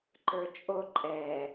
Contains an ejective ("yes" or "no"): yes